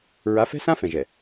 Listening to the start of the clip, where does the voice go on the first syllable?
rising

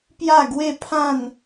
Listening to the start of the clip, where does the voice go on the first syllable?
falling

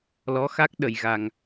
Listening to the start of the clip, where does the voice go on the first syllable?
rising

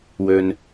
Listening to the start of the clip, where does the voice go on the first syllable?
low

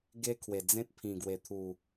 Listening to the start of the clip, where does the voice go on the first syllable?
high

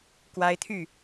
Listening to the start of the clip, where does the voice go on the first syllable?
high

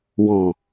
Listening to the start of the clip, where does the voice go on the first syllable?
low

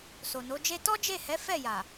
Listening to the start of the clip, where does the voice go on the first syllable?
low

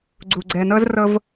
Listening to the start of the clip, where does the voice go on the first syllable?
low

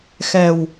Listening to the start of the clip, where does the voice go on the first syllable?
low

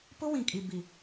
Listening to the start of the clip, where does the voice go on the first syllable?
high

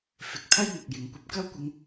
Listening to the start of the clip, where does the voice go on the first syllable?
rising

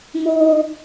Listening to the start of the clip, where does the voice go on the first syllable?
high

